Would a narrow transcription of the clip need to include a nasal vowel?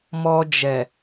no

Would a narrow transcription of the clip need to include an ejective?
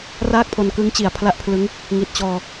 no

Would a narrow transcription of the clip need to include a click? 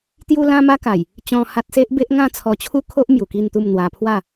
no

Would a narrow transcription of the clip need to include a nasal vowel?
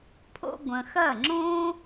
yes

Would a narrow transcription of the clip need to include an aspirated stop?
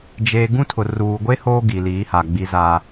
yes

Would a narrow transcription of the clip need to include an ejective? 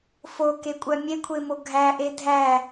yes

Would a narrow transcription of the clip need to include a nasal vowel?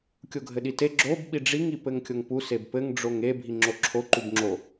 no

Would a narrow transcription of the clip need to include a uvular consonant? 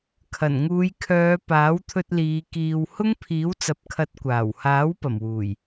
no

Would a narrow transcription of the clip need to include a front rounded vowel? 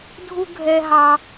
no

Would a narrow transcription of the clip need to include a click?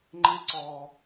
yes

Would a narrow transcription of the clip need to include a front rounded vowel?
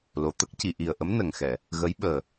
no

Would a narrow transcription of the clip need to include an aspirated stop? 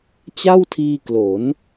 yes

